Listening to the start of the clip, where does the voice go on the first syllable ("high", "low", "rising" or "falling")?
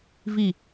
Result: falling